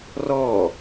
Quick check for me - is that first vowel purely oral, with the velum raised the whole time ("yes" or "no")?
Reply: yes